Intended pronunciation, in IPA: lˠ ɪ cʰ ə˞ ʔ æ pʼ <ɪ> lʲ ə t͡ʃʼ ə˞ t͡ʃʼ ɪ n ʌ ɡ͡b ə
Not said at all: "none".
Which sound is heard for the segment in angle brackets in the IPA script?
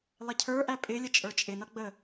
ɪ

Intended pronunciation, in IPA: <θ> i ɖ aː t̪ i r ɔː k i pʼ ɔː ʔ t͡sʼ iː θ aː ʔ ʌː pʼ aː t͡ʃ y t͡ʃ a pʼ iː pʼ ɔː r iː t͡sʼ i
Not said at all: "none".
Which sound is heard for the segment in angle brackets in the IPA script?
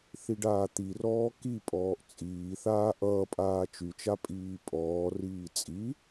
θ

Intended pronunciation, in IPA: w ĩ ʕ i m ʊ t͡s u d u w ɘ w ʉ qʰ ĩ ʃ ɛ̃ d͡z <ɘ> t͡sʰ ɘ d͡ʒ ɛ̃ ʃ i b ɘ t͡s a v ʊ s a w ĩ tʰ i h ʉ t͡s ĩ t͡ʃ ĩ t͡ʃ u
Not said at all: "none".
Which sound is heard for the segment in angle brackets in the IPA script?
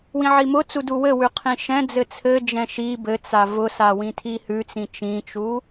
ɘ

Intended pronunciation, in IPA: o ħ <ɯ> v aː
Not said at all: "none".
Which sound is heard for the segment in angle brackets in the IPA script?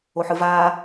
ɯ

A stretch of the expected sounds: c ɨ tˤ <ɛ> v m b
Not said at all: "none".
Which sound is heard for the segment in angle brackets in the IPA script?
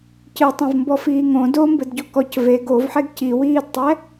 ɛ̃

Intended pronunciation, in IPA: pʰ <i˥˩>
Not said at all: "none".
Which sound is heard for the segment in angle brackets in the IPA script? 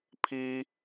i˥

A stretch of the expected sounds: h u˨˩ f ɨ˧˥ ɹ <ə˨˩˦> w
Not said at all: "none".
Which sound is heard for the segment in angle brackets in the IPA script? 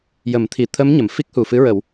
ə˨˩˦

